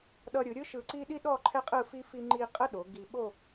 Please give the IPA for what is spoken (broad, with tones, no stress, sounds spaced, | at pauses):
ɗ ʌ˧ ɾʲ ɯ˩˧ ɾʲ ɯ˥ ʃ ɯ˧˩ ǀ i˥ ɗ i˥ ɗ ɔ˥˧ ǃʰ ɛ˥ qʼ ɯ˥˧ f i˥ f i˥ ŋ͡ǃ i˥ qʼ ə˥ ɗ o˩˧ ɡ i˧ ɓ o˥˧